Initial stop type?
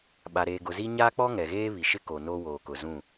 implosive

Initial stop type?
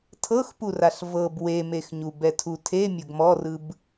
aspirated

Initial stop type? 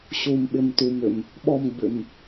implosive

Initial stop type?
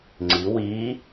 click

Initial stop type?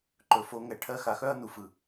click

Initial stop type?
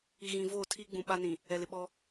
aspirated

